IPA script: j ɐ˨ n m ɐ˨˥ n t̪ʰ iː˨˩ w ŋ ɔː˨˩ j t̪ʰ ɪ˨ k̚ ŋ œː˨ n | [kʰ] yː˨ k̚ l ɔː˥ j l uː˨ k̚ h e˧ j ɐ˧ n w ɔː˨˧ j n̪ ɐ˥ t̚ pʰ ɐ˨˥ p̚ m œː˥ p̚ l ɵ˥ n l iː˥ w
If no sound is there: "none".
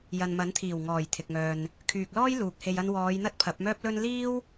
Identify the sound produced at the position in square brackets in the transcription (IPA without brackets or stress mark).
kʰ